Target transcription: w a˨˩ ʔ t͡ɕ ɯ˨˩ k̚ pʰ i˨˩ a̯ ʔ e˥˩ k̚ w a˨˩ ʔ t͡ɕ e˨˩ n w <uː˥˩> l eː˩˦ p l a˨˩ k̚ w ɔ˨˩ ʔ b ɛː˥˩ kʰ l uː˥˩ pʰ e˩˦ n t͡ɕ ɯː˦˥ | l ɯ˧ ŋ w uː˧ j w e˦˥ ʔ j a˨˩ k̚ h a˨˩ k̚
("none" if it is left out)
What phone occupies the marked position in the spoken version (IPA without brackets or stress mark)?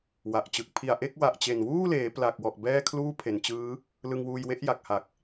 uː˥˩